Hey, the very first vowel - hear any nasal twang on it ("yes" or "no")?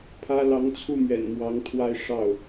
no